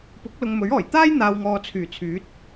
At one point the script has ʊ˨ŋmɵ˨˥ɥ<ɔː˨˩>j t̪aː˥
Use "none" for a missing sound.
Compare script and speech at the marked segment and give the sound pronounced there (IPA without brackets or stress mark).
ɔː˨˩